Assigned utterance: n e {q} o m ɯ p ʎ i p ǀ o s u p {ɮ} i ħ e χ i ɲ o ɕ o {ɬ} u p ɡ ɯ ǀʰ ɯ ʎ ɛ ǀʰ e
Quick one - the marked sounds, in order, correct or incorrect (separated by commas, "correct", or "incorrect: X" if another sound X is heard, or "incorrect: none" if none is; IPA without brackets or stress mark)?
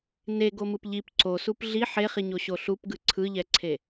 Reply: incorrect: ɡ, correct, correct